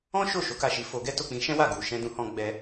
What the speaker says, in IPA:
ɔ̃˦ ʃ o˦˨ ʃ o˨˦ k a˦˨ ʃ i˨˦ f o˧ ɡ ɛ˦ t o˦˨ k͡p ĩ˧ ʃ ɛ̃˦ w a˦˨ ɡ u˨ ʃ ɛ̃˧ d ũ˧ h ɔ̃˧ ɡ͡b ɛ˧

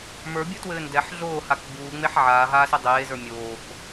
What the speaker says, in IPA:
m ə˞ bʲ u t w ɘː n d ɛ ħ ɮ oː h a k ɡ͡b uː ŋ͡m e ħ ʕ aː ɦ aː s ɘ dˤ eː z ə˞ mʲ oː k

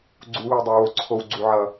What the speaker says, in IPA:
ɡ͡ǀ u˨˦ w i˨ dˤ ɛ˨ w o˨ ǀʰ o˨ w ɡ͡ǀ u˨ ʕ ʌ˨

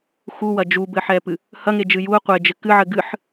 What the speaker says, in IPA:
x u w ɐ d͡ʒ u b ɘ ħ ɛ p ɨ | h ɐ ŋ e d͡ʒ ɨ j u ə̯ qʷ e d͡ʒ ɘ k ɨ ʕ ɘ ɡ ɨ ħ

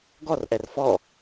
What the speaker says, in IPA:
ɡ ɔ r ʔ ɛ r f ɔ

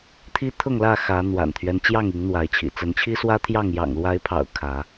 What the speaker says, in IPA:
t̪ʰ i˦ t̪ʰ ʊ˥˨ ŋ l ä˥˨ x ä˨˦ n̪ w a̰˨˩ n t̪ʰ ɥ ɛ˦ n t͡ɕ j ɑ˥˨ ŋ i˨˦ ŋ n̪ w a˨˦ ɪ̯ t͡ɕʰ ḭ˨˩ t͡s ə˨˦ n t͡ɕʰ i˦ s w ä˦ t̪ʰ j ɑ˥˨ ŋ j ɑ̰˨˩ ŋ l w a˨˦ ɪ̯ pʰ ɑ̰˨˩ ʊ̯ kʰ ä˨˦

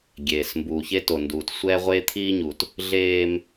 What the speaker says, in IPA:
ɡʲ eː˨ s m b uː˨ ç e˦ t o˨ n d uː˨ t sʷ ɛː˦ ʁʷ eː˦ t̪ʰ iː˦ ɲ u˨ t | ɮ eː˦ m

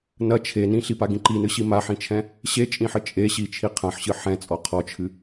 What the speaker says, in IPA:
n ɐ t͡ʃʰ e n ĩ ɬ i p a ɡ ĩ ǃ i n ɨ ɕ i m a ħ ĩ t͡ʃʰ ɛ̃ | ɕ e t͡ʃʼ ĩ ħ ɘ t͡ʃʼ e ɕ i t͡ʃʰ i qʰ ɐ̃ ħ ɕ ɨ ħ ɛ̃ t͡sʼ ɔ qʰ ɔ t͡ʃʰ ɨ

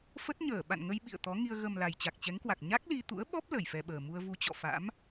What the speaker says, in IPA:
f ə˦˥ t̚ ɲ əː˧˩ ɓ a̰˧˨ n ŋ ə˧ j ɓ ḭ˧˨ ə̯ t̪ ɔ˨˦ ŋ i˧ ə̯ ɣ ə˨˩ m l a˨˩ j t͡ɕ a˨˩ k̚ t͡ɕ ɛ˨˦ ŋ k w a˨˩ k̚ ɲ a˦˥ k̚ l i˧ t̪ ṵ˧˥ ə̯ ɓ ɔ˦˥ p̚ l ə˧˩ j f ɛ˧ ɓ əː˨˩ m u˧ ə̯ v u˧ t͡ɕ ɔ̰˧˨ f a̰˧˥ m

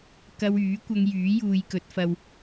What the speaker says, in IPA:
k ɐ˧ w yː˨˥ kʷ ɐ˧ ŋ j yː˨˥ j uː˧ j k ɵ˨˥ t̚ f ɐ˧ w

